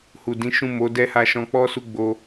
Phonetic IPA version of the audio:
h u˨ d ĩ˨˦ ʃ ũ˦˨ m o˨˦ d ɛ˦ h a˧ ʃ ɔ̃˧ k͡p ɔ˦ s u˦˨ ɡ͡b o˧

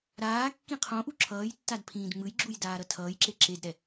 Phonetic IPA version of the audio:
ɾ aː kː ĩ qʰ õ ʔ u ǁʰ ʌː j tː a d pʰ ĩː d ŋ͡m ɯ j ɡ͡ǁ u j d aː ɾ ʌ tʰ ʌː j ǁ e ǁ e d ɾ ɛ

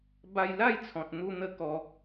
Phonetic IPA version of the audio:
b a˧ j l a˥˧ j t͡sʰ ɔ̃˨ t̚ n̪ u˦ n̪ ə˦ k ɔ˧

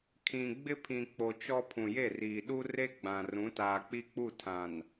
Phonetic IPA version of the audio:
kʰ ĩ˨ ɡ͡b ɪ˦ pʰ ĩ˨ k͡p o˨ t͡ʃ ɔ˦ pʰ ũ˨ j e˦˨ r iː˨ ɗ u˦ r e˦ ɡ͡b ã˨ r ũ˨˦ t aː˨ k͡p i˦ k͡p u˦˨ tʰ ã˨ n

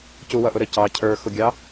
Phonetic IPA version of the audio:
c u w ʌ ʔ ʊ ɾ ə c ɑ cʰ ə˞ x ʊ ɡʲ ɑ

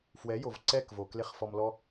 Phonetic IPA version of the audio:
f w ɛ˨˦ j o˨ v ǀ ɛ˦˨ k v o˨ k l e˦ χ f ɔ˧ m l ɔ˦

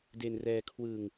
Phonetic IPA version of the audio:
d e˧ n r ɛː˧ kʰ w ɯ˧ ŋ

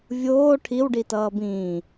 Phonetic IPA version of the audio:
vʲ oː ʈʰ i w ɖ i t ʌː b ĩː

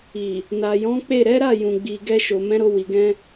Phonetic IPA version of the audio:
i˨ | n a˨ j ɔ̃˨˦ k͡p e˦˨ ɾ ɛ˨˦ ɾ a˦˨ j ũ˨ ɡ͡b i˨ ɡ ɛ˧ ʃ o˨ m ɛ̃˨˦ ɾ o˧ w i˨ ɡ ɛ̃˧

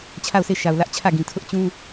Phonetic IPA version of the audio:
t͡ɕʰ a˦˨ ʊ̯ s e˦˨ ʃ a˨ ʊ̯ l ä˦ ʔ t͡ɕʰ ä˦˨ ɡ ĩ˨ tʰ ʊ˦ ʔ t͡ɕ ũ˦

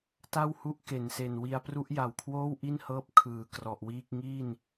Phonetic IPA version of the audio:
t a˥˩ w h u˦˥ ʔ k e˩˦ n s e˨˩ n w i˧ a̯ p r u˦˥ ʔ j a˨˩ w kʰ w oː˥˩ w ʔ i˥˩ n h ɤː˦˥ p̚ kʰ ɯː˩˦ k r ɔ˨˩ ʔ w iː˥˩ k̚ ŋ iː˥˩ n

